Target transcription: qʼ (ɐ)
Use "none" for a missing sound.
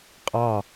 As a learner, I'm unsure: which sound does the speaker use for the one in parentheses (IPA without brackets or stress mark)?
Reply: ɑ